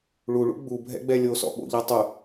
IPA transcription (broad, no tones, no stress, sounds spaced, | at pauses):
ɭ u ɭ ṵ ɡ͡b u bʱ ɛ̰ ɡ͡b ɛ lʲ o s ɔ̰ ɓ o̰ ʎ a tˤ u